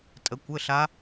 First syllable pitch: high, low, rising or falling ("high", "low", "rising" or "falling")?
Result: rising